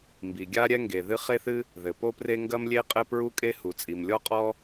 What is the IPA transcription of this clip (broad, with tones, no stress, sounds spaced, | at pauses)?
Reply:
m b i˩ ɡʲ a˥ ɾʲ ɛ˥ ŋ ɡ e˩ ð ɨ˥ χ e˥ θ ɨ˥ | ð ɘ˩ p o˥ p r e˥ ŋ ɡ ɐ˥ m lʲ e˥ qʼ ɘ˥ p ɹ u˥ kʼ e˥ h u˩ t͡sʼ i˩ m lʲ ɔ˥ qʼ ɔ˥